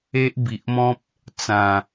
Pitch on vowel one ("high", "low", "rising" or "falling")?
high